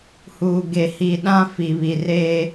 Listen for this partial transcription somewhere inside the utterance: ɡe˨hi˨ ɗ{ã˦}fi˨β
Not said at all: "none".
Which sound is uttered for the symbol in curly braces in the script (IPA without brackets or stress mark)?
ã˦